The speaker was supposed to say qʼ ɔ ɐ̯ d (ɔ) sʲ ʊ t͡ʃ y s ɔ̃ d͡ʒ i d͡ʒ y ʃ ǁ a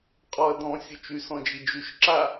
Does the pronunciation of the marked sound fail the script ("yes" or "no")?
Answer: yes